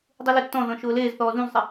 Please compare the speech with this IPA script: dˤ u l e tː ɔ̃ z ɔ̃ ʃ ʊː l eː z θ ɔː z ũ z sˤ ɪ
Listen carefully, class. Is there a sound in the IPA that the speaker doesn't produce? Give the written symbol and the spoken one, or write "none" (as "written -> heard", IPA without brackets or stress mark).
none